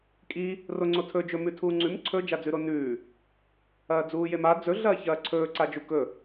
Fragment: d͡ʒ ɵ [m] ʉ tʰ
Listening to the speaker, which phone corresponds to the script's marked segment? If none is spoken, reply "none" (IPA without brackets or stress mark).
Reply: m